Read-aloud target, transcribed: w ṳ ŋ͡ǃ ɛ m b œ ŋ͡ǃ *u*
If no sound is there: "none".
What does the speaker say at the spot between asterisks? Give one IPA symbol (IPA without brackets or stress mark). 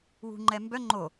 o